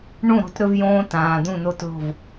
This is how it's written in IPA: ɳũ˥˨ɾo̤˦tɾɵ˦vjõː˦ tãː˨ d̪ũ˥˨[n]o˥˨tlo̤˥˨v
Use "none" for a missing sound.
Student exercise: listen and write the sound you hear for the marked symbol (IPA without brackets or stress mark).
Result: n